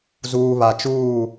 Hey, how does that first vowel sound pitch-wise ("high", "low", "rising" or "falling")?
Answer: low